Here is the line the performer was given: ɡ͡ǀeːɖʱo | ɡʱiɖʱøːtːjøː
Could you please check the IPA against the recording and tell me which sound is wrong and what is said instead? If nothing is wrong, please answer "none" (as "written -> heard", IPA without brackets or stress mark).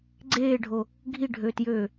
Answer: tː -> t